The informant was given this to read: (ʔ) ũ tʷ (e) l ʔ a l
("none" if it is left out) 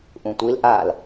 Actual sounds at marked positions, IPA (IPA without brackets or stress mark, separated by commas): ʔ, i